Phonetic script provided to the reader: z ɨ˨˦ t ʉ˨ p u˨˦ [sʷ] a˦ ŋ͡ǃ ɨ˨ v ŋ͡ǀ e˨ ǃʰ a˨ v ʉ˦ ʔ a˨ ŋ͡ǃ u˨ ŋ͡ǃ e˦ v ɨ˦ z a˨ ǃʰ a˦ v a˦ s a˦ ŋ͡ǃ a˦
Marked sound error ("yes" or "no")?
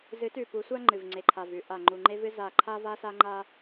no